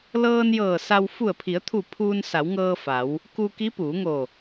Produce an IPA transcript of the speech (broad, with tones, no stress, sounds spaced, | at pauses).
l ɤː˧ n j ɤː˧˩ s a˧ w f u˧˩ ə̯ pʰ i˩˧ ə̯ t̪ʰ u˧˩ pʰ uː˧ n s a˩˧ w ŋ ɤː˧ f a˩˧ w | k u˧ k i˧˥ p uː˩˧ ŋ o˧˩